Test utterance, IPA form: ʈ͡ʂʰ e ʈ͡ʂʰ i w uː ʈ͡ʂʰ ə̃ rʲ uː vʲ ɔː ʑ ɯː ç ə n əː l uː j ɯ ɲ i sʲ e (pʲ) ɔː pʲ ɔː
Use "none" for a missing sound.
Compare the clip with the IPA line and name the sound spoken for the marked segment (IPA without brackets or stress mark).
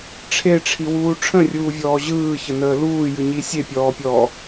pʲ